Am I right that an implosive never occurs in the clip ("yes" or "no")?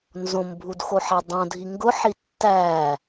yes